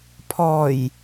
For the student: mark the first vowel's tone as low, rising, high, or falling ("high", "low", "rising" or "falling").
low